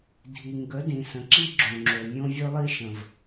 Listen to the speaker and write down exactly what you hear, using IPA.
dʱ i˨ ŋ ɡ ə˨˦ d ĩ˨ s ə̃˨ ǁ i˦ ɡ͡ǁ õ˨ ŋ͡ǁ o˨ mʲ õ˦ vʲ ɵ˦ lˠ i˦ ʃ ə̃˨ v

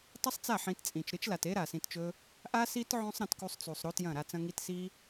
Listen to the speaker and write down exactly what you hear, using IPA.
tˤ ɨ˦ sˤ t͡s a˦˨ ħ ĩ˧ t t͡sʼ ĩ˨ t͡ʃ ɾ ɨ˦ t͡ʃ l a˨ t e˦ ɾ a˨ s ĩ˧ t t͡ʃ ɵ˦ | ʔ a˦ s i˦ t ʕ õ˦ sˤ ɾ ɐ̃˧ t k u˧ sˤ t͡s u˨ sˤ ɾ o˦ t j ɐ̃˦˨ ɾ a˧ t͡s ɐ̃˧ ŋ i˧ t s i˦

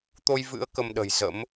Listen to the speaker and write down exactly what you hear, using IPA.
t̪ o˧ j v ɨ̰˧˥ ə̯ k ə˧ m ɗ ə̤˨˩ j z ə̰˧˥ m

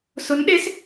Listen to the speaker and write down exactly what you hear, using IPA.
s ʊ˧˥ n ɗ e˧˥ s

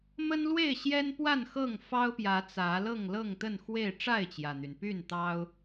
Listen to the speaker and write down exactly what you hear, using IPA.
m ə˦ n l w e˥˨ ɪ̯ ɕ j ɛ˦ n p w a˥˨ n x ɤ˥˨ ŋ f ɑ˦ ʊ̯ p j ä˨˦ t͡s ä˨˦ l ɤ˥˨ ŋ l ɤ˥˨ ŋ t̪ ə˥˨ n x w e˥˨ ɪ̯ ʈ͡ʂ a˥˨ ɪ̯ t͡ɕ j ä˩ n̪ y˩ n p y˥˨ n t̪ ɑ˦ ʊ̯

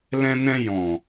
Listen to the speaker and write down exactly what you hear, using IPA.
l ɛ̃˧ n ɛ̃˧ j ɔ̃˨

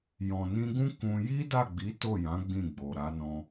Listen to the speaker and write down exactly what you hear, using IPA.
j ɔ̃˨ n ĩ˧ ɡ ũ˦ k ũ˧ j i˦ d a˦˨ ɡ͡b i˨˦ t o˦˨ j ã˨˦ ɡ͡b ĩ˦˨ ɡ͡b o˨ ɾ a˨˦ n ɔ̃˧

